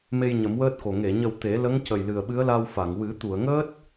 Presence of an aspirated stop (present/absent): absent